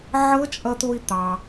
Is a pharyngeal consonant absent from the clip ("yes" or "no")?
no